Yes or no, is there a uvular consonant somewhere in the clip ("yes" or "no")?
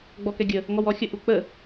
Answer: no